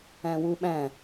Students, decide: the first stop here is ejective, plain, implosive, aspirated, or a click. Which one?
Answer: implosive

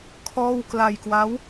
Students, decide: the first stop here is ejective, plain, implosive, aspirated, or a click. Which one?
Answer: aspirated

